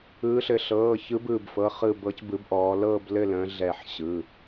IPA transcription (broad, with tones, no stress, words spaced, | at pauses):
ɯː˨˦ɬɘ˨˦ ɬɤː˩˧˩çɯ˨˦bɯː˧˩b fɤ˩˧˩χɯ˧˩bɤ˨˦c bɯ˨˦bʔɔː˨˦lɤː˥˧blɘ˥˧ lə̃ː˨˦ɮɛ˧˩ħɕɯ˩˧˩